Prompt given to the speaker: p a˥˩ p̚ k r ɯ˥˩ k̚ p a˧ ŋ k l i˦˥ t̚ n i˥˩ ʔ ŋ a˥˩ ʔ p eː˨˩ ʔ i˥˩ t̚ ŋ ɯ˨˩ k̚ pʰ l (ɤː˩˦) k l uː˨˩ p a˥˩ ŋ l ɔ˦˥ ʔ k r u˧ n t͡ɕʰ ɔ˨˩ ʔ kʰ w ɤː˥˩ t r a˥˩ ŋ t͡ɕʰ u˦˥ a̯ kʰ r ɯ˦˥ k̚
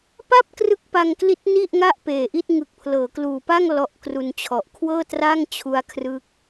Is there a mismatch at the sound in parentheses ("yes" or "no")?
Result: no